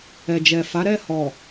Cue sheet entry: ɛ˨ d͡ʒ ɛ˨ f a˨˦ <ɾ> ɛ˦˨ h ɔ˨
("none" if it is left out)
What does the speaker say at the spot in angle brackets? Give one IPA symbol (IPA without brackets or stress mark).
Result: ɾ